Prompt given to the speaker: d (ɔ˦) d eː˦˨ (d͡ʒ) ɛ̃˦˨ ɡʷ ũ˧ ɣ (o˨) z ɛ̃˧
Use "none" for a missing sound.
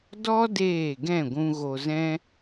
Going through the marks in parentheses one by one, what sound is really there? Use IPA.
ɔ˦, ɡ, o˨

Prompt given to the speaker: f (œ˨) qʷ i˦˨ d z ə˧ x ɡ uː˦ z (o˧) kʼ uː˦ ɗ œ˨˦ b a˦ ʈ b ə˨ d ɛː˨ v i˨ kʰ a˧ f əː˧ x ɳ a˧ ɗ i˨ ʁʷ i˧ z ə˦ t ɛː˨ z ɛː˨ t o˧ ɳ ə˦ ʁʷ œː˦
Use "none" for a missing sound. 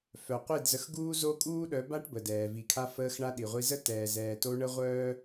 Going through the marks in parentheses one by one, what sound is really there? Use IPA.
œ˨, o˦

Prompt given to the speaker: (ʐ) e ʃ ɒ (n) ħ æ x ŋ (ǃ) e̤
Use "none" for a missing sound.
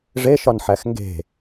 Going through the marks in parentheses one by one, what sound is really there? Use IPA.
ʐ, n, ɡ

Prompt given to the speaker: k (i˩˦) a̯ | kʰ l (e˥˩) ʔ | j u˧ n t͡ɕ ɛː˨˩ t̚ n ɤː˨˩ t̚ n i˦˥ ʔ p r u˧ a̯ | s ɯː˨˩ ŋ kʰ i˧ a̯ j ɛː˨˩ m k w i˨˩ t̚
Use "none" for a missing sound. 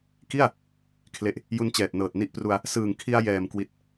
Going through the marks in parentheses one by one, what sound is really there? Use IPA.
i˥˩, e˨˩

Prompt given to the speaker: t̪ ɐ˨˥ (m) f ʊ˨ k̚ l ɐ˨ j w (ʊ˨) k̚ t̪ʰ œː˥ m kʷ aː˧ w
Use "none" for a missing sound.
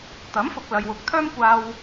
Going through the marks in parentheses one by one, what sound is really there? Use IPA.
m, ʊ˨˥

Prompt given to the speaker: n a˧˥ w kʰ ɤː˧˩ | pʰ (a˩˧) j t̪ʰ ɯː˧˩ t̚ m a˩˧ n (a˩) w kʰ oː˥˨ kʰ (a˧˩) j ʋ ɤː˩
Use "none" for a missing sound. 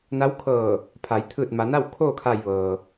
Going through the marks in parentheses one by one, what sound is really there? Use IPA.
a˩˧, a˥˨, aː˧˩

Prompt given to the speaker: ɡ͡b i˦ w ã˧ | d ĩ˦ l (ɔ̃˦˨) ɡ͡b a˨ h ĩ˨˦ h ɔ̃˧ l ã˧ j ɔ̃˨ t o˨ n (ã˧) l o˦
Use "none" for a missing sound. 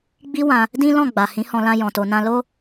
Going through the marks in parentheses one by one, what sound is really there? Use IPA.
ɔ̃˦˨, ã˧

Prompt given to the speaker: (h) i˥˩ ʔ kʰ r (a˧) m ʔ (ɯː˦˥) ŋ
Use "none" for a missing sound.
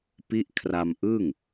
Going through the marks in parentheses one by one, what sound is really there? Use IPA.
p, a˧, ɯː˥˩

